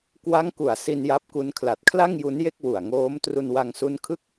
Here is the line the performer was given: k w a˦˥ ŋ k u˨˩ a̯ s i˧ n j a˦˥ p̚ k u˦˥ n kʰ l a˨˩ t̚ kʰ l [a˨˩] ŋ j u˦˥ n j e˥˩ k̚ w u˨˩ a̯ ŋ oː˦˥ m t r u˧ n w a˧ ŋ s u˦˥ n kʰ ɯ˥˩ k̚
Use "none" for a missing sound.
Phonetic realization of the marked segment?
a˥˩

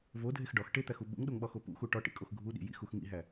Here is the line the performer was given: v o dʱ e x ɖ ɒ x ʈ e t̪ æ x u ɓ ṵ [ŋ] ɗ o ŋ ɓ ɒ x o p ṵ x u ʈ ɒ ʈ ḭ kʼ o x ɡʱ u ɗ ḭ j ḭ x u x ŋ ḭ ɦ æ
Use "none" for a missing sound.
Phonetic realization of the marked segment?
ŋ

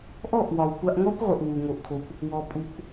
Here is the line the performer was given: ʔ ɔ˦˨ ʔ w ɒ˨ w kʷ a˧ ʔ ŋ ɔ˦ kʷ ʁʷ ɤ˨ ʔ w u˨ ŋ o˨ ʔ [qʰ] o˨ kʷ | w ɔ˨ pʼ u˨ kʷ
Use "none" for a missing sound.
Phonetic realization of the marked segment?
kʰ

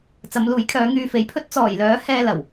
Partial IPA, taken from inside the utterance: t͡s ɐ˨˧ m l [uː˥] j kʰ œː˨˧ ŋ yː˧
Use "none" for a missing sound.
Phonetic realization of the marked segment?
uː˨˥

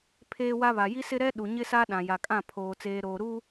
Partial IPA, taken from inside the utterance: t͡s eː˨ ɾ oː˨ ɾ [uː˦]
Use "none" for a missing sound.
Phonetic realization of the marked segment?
uː˦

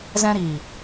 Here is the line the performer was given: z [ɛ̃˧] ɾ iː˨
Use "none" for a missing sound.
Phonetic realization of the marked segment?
ɛ̃˧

